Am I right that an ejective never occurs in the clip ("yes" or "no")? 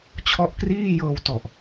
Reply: yes